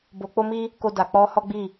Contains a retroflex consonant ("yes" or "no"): no